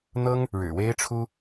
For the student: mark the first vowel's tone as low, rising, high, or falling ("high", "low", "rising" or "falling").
high